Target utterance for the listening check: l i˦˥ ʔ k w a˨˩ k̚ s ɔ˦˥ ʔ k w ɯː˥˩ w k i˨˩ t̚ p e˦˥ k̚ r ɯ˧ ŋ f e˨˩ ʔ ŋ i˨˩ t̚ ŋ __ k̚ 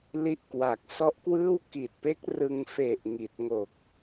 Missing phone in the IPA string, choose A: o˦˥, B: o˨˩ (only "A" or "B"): B